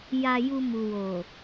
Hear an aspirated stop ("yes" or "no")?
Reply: no